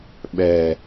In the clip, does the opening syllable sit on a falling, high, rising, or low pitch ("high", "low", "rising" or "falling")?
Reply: low